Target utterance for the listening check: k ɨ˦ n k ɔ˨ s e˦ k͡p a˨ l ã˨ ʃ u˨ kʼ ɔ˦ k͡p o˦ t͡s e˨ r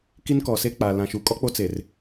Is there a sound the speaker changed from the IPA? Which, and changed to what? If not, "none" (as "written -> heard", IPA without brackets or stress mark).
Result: ɨ˦ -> i˦